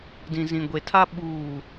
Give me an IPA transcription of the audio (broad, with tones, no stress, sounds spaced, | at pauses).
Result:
d ĩ˨ z ĩ˨ ɡʷ e˨ tʰ a˦ ɓ uː˦˨